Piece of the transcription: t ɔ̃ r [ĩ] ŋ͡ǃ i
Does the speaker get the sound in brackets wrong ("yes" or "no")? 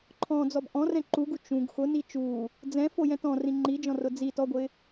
no